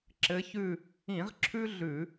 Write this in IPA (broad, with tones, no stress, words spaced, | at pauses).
ǁɘ˨˦çʉ˦˨ | ĩ˧˩˧ʁǁʰʉ˦ ɮʉ˧˩˧